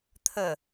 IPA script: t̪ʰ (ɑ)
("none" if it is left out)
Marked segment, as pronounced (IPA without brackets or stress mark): ə